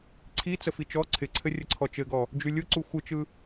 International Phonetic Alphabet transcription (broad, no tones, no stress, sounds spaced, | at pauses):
ǀʰ i t͡s ə f i t͡ʃ ɔ ǀʰ ɪ ǀʰ ɘ rʲ ə ǀʰ ɔ t͡ʃ ɘ ɡ ɔ | d͡ʒ y lʲ ɯ ǀ u xʷ ɯ t͡ʃ ɯ